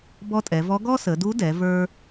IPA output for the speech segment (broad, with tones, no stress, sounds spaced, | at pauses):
b ɔ˧˥ tʼ ɛ˩˧ v ɔ˧˥ ɡ ɔ˥ s ə˩˧ d u˧˥ d ɛ˩˧ v ə˞˥